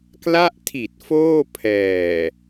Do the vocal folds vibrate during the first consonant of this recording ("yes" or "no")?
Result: no